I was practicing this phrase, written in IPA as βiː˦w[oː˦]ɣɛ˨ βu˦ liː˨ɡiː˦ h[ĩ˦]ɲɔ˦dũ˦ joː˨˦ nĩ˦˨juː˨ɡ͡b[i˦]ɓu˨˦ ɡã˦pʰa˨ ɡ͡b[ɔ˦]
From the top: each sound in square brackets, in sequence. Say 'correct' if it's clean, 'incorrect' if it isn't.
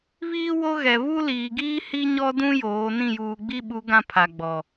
incorrect, incorrect, correct, incorrect

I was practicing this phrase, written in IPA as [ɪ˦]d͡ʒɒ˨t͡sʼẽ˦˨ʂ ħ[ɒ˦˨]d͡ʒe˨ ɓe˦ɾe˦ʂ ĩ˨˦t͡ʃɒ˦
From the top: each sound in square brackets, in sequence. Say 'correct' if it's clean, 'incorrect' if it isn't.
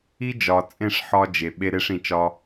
incorrect, incorrect

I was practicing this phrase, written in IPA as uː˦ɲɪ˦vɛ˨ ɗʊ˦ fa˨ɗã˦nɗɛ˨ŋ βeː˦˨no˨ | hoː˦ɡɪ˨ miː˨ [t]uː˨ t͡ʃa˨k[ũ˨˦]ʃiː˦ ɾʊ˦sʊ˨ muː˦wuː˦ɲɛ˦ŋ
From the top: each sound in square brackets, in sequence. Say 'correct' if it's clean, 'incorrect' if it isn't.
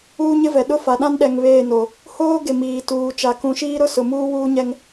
correct, correct

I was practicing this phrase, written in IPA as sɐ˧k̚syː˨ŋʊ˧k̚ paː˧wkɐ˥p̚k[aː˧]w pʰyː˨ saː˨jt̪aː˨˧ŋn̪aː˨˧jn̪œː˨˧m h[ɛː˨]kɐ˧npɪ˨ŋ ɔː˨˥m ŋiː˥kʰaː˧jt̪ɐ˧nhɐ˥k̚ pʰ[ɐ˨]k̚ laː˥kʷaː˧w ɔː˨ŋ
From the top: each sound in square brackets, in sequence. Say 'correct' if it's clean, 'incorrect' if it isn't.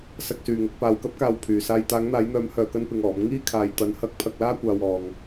correct, incorrect, incorrect

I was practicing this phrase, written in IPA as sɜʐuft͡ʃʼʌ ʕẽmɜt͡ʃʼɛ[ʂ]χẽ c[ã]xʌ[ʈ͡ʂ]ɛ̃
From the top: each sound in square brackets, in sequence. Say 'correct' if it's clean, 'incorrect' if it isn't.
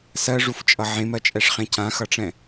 correct, correct, correct

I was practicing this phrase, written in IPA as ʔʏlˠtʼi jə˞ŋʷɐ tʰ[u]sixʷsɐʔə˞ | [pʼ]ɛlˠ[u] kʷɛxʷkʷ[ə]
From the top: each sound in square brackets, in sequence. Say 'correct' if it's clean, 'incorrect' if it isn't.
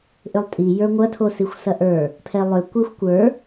incorrect, incorrect, incorrect, incorrect

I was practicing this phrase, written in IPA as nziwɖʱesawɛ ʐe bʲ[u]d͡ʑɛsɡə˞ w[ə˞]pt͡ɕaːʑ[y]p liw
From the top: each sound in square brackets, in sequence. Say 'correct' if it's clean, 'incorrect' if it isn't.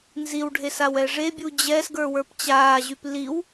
correct, correct, correct

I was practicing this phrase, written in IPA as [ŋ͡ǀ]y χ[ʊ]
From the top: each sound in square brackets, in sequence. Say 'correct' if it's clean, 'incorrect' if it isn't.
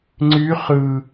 correct, incorrect

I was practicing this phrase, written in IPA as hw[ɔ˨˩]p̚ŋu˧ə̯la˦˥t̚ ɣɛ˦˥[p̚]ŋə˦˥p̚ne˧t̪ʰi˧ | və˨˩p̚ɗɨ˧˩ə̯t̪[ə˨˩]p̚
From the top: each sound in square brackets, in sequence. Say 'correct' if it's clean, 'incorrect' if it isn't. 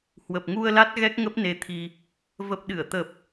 incorrect, incorrect, correct

